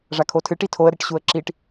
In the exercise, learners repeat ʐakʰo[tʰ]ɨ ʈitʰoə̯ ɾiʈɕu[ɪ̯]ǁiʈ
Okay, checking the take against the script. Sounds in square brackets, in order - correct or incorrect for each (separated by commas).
correct, incorrect